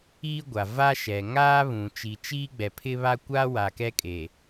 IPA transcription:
iː˦ ɡʷ a˨ v a˦ ʃ ɛ˨ ŋ aː˦ β ũ˨ t͡ʃ i˨ t͡ʃ iː˦ ɡ͡b ɛ˨ pʰ ɪ˦ β a˦ kʷ aː˦ w a˨ k ɛ˦ kʼ eː˨

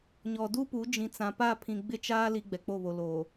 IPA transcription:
ɲ ɔ˨ d u˦ p u˨˦ d͡ʒ ĩ˨ t͡s ã˨ p a˦˨ pʰ ĩ˨ ɡ͡b ɪ˦ t͡ʃ aː˦ l i˦ ɡ͡b ɛ˨ k͡p o˦˨ β o˨ l oː˨

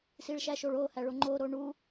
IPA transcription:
s i ɭ ʃ æ ʃ o ɭ o h æ ɭ o ŋ͡ǃ o ɾ o ɳ u

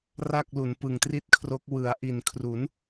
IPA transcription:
r a˥˩ k̚ l u˩˦ n p ɯ˨˩ ŋ t r i˥˩ t̚ kʰ r o˦˥ k̚ w ɯ˩˦ a̯ ʔ i˨˩ n kʰ r u˩˦ n

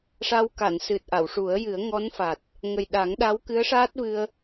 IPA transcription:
ʂ a˧ w k a˨˩˨ n s ɨ˨˩ t̚ ʔ a˨˩˨ w ʂ u˨˩˦ ə̯ j ɨ˨˩˦ ə̯ ŋ ɔ˧˥ n f a˨˩ t̚ | ŋ ə˨˩ j ɗ a˨˩˦ ŋ ɗ a˧˥ w k ɨ˧˥ ə̯ ʂ aː˦˥ t̚ v ɨ˧ ə̯

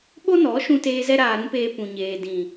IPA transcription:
ɓ o˦ n ɔ˨˦ ʃ ũ˧ t eː˧ z ɛ˦ ɾ aː˧ ɾ ũ˦ p eː˧ p ũ˨ ɲ eː˨ d ĩ˨

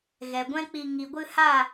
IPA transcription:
ɣ ɛ˨ ɡʷ ɛ̃˦ k͡p i˧ ŋ i˨ ɡʷ ɨ˧ h a˦˨

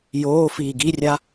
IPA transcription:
j oː f iː ɡ i rʲ a

